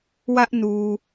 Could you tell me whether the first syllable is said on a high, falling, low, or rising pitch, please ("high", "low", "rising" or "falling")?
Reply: high